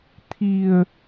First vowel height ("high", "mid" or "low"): high